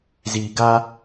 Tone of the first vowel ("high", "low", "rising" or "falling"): low